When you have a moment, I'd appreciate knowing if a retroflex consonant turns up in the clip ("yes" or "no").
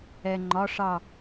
yes